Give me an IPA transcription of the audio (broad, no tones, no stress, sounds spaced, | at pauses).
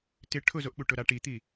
t ɪ ʈʰ ʊ z o ʔ ɓ u ʈ ʊ ɾ a ʈ i t̪ i